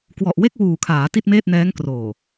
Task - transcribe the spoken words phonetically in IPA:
k w ɔ˨˩ ʔ w e˥˩ k̚ w uː˨˩ kʰ aː˩˦ t i˥˩ t̚ m eː˥˩ t̚ n ɛː˦˥ ŋ k r oː˨˩

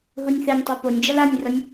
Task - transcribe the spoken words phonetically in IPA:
ɦ u nʲ θ e nʲ tˤ u p o nʲ d͡ʒ ʌ l a nʲ r ʌ nʲ

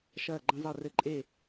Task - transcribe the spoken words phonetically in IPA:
ʃ ɐː˥˧ ɡ͡ǃ ɐ̃˥ zˤ e˥˧ r ɘ˥˧ ǃʼ e˥˧

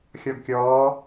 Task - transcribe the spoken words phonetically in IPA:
xʲ ɔ ɡ kʲ ɔː

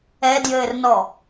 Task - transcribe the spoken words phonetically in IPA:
ɛ d j ɘː r n ɔ

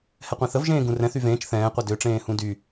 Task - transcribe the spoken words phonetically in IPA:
h ɛ qʷ ẽ θ ə v ʒ ẽː ɡ ũ r ɛ̃ θ y v ẽː t͡ʃ θ ɛ̃ː qʷ ɛ d ø ʈ͡ʂ ẽː h ũ d y

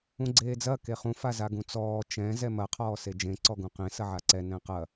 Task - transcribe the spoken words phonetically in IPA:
ũ ɡ͡ǀ eː d͡z ɐ k e χ ũ f a z a ɡ ũ t͡s ɔː t͡ʃ ɛ̃ z ɛ m ɐ qʰ ɔː s e d͡ʒ ẽ ǀ ɔ ɡ ũ q ẽ s ɐ ʕ a ǀ ɛ n ɛ̃ q ɐ

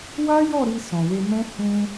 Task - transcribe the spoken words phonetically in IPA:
w a˦ j ɔ˦˨ ɾ i˧ s ɔ̃˨ w e˧ m ɛ̃˦ h ũ˧

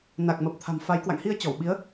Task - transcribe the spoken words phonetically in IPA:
n a˨˩ k̚ m ə˨˩ p̚ t̪ʰ a̤˨˩ m f a˨˦ j k w a̰˧˨ ŋ h i˧ ə̯ t͡ɕ ɔ˧˩ w ɓ i˨˦ ə̯

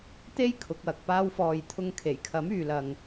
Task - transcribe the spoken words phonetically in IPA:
t̪ e˥ j kʰ ʊ˨˥ k̚ w ɐ˨ k̚ p aː˥ w f ɔː˨ j t̪ʰ ʊ˧ ŋ kʰ e˨˩ j kʰ ɐ˨˥ m yː˧ l ɐ˧ ŋ

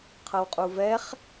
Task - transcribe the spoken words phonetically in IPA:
qʰ ɤ w qʼ u v ɛ χ

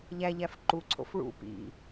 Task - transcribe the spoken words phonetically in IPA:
ʎ æ ʎ æ f ǃ u ǀʰ o̰ f ɭ ṵ p ḭ

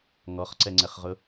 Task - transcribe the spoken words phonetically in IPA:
ŋ ɔ χ ǀ ɛ ŋ͡ǀ ɛ χ ʁ ʊ

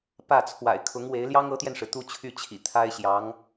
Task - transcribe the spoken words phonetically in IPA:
p ä˥˩ t͡sʰ w a̰˨˩ ɪ̯ kʰ ʊ˧˥ ŋ w e˧˥ ɪ̯ l j ɑ˥ ŋ ɤ˧˥ t̪ j ɛ˧ n ʂ ɻ̩˩ t̪ u˥˧ t͡ɕʰ y˥˩ t͡ɕʰ ḭ˨˩ t̪ʰ a˥ ɪ̯ ɕ j ɑ˧˥ ŋ

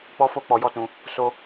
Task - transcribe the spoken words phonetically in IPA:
k͡p ɔ˦ f o˦ k͡p ɔ˧ j ɔ˦ t ũ˧ | s o˦

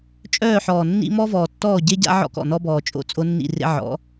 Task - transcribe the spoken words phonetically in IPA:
t͡ʃʼ œː˦˨ ħ ɔː˨ nː ḭ˦ m ɔ˦ v ɔː˨ tː ɔː˦˨ ɟ e˦ ɟ a̰˦ ʕ ɔ̰˦ k ɔ̰˨ n ɔ˦ b ɔː˨ t͡ʃʼ o̰˦ t͡sʼ o˦ nː ḭ˦˨ r ḛ˦ ʕ ɔ̰˨˦

